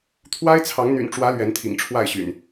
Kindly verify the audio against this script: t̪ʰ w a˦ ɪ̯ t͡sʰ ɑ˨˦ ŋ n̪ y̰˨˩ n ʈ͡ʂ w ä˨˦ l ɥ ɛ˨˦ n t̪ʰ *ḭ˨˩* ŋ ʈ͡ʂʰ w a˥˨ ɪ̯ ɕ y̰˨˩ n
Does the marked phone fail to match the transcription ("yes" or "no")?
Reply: no